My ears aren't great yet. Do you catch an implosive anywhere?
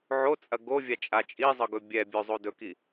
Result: no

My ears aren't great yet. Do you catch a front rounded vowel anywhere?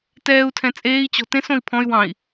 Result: yes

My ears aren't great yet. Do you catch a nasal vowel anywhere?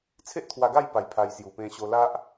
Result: yes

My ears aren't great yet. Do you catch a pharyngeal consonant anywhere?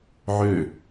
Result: yes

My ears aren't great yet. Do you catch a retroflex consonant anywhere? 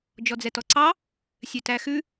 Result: no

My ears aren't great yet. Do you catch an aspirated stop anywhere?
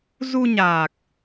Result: no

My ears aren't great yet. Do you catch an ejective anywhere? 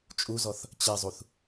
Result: yes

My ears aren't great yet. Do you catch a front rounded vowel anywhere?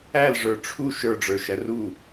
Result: no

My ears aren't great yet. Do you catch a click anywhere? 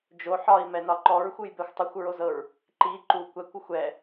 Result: yes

